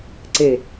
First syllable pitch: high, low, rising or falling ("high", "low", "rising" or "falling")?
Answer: low